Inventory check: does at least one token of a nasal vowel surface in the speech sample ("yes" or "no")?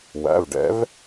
no